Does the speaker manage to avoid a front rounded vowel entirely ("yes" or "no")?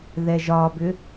no